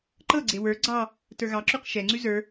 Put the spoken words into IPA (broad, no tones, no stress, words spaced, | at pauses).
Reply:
ǃɤɡ͡ǀe wə˞ ɡ͡ǀɑ | tə˞ɣɑǁʉq ʃɛŋ͡ǀʉ zə˞